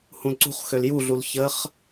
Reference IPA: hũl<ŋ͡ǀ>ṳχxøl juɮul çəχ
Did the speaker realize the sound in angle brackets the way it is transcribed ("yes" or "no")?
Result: no